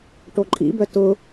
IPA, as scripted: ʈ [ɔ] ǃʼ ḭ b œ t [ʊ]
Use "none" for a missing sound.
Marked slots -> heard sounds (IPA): o, ʊ

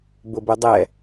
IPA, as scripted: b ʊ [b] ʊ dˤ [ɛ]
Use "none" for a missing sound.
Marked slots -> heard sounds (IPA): b, ɛ

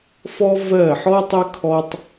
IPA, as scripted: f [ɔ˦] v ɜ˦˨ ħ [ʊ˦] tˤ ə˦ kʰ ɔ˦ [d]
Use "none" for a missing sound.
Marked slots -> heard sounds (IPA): ɔ˦, ɔ˦, tˤ

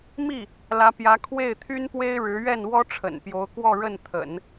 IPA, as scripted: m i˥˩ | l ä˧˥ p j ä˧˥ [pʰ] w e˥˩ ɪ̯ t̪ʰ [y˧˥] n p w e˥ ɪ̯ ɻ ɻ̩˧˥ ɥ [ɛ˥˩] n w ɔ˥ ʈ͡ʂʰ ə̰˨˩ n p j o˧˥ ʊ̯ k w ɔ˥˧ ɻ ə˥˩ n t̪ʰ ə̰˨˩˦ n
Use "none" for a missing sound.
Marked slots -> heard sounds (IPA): kʰ, y˥, ɛ˥˩

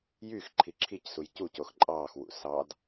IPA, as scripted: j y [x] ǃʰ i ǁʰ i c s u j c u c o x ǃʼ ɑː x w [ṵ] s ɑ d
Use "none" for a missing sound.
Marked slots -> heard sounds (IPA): x, ṵ

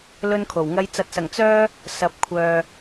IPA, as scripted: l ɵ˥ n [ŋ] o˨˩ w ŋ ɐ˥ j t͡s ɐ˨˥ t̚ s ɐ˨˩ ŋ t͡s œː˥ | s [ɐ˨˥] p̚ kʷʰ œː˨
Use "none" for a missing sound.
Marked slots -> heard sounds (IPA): kʰ, ɐ˨˥

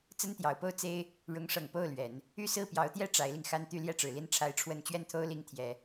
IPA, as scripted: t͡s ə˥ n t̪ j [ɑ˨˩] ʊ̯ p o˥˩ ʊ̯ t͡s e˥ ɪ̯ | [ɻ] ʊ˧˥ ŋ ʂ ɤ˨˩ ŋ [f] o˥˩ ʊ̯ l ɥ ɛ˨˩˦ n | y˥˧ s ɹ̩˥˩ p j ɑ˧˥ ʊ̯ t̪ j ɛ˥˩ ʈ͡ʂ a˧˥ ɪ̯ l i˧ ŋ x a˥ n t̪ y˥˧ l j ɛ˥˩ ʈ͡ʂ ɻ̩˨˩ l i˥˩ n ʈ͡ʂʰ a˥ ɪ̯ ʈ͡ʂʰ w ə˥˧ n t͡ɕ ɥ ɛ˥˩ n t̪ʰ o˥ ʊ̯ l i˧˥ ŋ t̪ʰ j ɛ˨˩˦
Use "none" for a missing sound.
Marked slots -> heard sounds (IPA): ɑ˨˩, ɻ, p

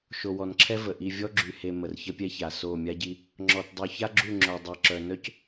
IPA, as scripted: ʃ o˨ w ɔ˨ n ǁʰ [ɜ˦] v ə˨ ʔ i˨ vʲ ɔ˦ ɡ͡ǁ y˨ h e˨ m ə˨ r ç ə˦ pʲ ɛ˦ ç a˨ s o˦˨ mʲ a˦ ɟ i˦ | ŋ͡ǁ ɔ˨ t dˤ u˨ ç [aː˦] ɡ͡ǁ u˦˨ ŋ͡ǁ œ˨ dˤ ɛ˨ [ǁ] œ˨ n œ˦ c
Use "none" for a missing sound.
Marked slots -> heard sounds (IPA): ɛ˦, a˦, ǁ

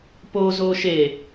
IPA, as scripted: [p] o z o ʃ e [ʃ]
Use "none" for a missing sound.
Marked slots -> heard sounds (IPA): p, none

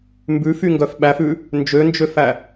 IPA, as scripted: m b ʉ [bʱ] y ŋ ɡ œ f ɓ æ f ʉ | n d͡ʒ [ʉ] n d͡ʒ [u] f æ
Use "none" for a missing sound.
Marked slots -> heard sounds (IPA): f, ø, ø

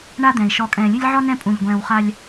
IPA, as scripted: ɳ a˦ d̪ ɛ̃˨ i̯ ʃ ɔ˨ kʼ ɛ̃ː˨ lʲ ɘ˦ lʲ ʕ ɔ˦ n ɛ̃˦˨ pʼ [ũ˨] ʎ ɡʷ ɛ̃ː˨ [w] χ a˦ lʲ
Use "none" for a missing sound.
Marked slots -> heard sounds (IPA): ũ˨, w

